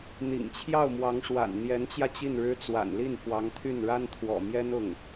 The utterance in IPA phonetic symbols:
n̪ ḭ˨˩ ŋ t͡ɕʰ j ɑ˥˩ ʊ̯ m w ɑ˧˥ ŋ ʂ w a̰˨˩ n n̪ j ɛ˧˥ n t͡ɕ j ä˧ t͡ɕ i˥˩ n ɻ ɻ̩˥ t͡s w a̰˨˩ n l i˥˩ n f w ɑ˧˥ ŋ t̪ʰ y˥˩ n ɻ a˥ n t̪ʰ w ɔ̰˨˩ m j ɛ˥ n ʊ˥˩ ŋ

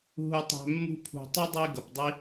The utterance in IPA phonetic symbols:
ɦ u˦ tˤ æ̤˦ mː ṳ˥ pʰ ṳ˨ tˤ ə˥ dˤ i˥ ɡ ʌ˩ p dˤ i˦

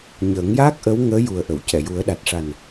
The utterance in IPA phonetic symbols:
ɲ əː˨˩˦ ŋ j aː˦˥ k̚ ʔ ə˧˥ w ŋ əː˧˥ j u˨˩ ə̯ ʔ ə˨˩˨ w c ɛ˨˩˨ j u˨˩˦ ə̯ ɗ a˨˩ t̚ ʂ a˨˩ n

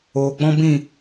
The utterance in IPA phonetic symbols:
oː˨ ɡ͡b ɔ̃˦ b ĩ˦˨

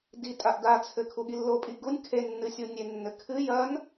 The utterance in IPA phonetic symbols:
d i tʼ a ʔ d a t͡sʰ ɘ kʰ u ɠ i lː o pʼ i ɡ u nʲ kʰ e nː ɨ sʲ u nʲ e nː ɘ kʰ ɨ j ɐ n

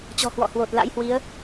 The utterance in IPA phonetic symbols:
t͡ɕ ɔ̤˨˩ h w ɔ̰˧˨ h w o˨˩ t̚ l a̰˧˥ j h w i˨˦ ə̯

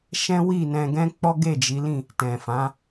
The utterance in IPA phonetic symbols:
ʃ ɛ̃˦ w i˦˨ n ɛ̃˧ ɡ ɛ̃˦ k͡p ɔ˦ ɡ e˦˨ d͡ʒ i˨˦ l ĩ˦˨ | t ɛ̃˨ f ã˨˦

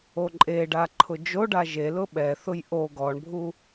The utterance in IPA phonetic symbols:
o ǃʼ e ɖ a ǃʰ ʊ d͡ʒ o ɖ a ʒ e l ʊ ɓ ɛ θ ʊ j ʔ o ɡ ɔ ɳ bʱ u

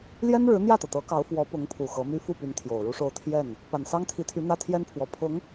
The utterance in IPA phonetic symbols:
l j ɛ˥ n ɻ ɻ̩˧˥ n̪ j ä˥˩ t̪ ɤ˩ t̪ ɤ˧˥ k ɑ˧˥ ʊ̯ f w ɔ˧˥ p ʊ˧˥ ŋ pʰ u˨˩ x ɤ˧˥ m y˥ f u˥˩ p y˧˥ n t̪ʰ j o˨˩ ʊ̯ ɻ u˥ ʂ o˥˧ ʊ̯ t̪ʰ j ɛ˥˩ n | p a˨˩ n s ɑ˥ ŋ t̪ʰ i˧˥ t̪ʰ y˧˥ n̪ ä˥ t̪ʰ j ɛ˥ n pʰ w ɔ˨˩ pʰ ʊ˧˥ ŋ

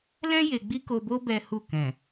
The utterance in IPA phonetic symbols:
l ɛ̃˦ j e˧ ɡ͡b i˦ k o˧ b o˦ b ɛ˦ h u˦˨ k ɛ̃˨

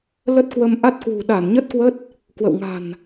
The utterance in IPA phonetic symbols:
l ə˦˥ t̚ k w ə˧ m ʔ a˦˥ t̚ k w ṳ˨˩ ɗ a˧˩ n ɲ ə˦˥ t̚ k w ə˦˥ t̚ | k w ə̰˧˨ w ŋ a̤˨˩ n

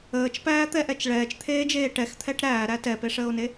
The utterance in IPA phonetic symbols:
əː t͡ʃ p æː t̪ ɛ ʔ ɛ t͡ʃ ɭ ɛː t͡ʃ t̪ʰ eː d͡ʒ eː ʈ ɛ x t̪ʰ ɛ ʈ ɾ æː ɾ æ t ɛ p e ʂ əː o̯ n e

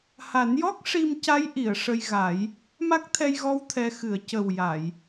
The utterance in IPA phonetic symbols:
h a˨˩˦ n j ɔ˦˥ k̚ ʂ i˧ m c a˧˥ j ʔ i˨˩˨ ə̯ ʂ ə˧ j ɣ a˨˩˦ j | m a˦˥ k̚ t̪ʰ ɛ˧ j ɣ ɔ˧˥ w t̪ʰ ɛ˧˥ x ɨ˨˩˦ ə̯ c ə˨˩ w j a˨˩˨ j

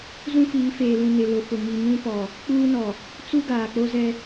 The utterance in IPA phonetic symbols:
z ũ˦ f iː˨˦ f eː˨ l ũ˨ n ɪ˨ l ʊ˨ f ʊ˨ ŋ i˨ ŋ ũ˦ p ɔ˨ | k͡p uː˦ n ɔ˨ | t͡s u˦ ɡ aː˨ k͡p o˦ z ɛ˦

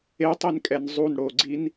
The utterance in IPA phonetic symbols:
e tˤ i n kʼ ɛ n zˤ u n ɽ o ɡ͡ǀ i n

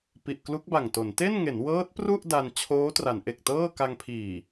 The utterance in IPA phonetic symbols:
p i˨˩ ʔ k l u˦˥ k̚ b a˨˩ ŋ t o˩˦ n t e˥˩ n ŋ e˩˦ n w ɤː˦˥ t̚ p r u˥˩ ʔ d a˧ n t͡ɕʰ oː˦˥ t r a˩˦ n ʔ e˨˩ k̚ t ɤː˥˩ k a˧ ŋ pʰ iː˨˩

